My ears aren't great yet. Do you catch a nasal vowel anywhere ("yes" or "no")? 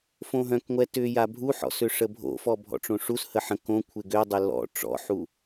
yes